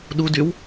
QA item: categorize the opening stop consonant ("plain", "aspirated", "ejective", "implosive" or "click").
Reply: implosive